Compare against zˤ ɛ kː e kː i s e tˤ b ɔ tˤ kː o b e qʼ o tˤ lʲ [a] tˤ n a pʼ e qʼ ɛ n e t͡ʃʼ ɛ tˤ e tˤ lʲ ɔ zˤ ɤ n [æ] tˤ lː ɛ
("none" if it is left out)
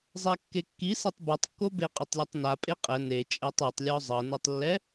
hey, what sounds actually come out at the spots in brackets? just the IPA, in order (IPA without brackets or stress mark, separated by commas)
a, ɛ